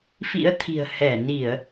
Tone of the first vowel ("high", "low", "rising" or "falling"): rising